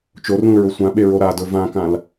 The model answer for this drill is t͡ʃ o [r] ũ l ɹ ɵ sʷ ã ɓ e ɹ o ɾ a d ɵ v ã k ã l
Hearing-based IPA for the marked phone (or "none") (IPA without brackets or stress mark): r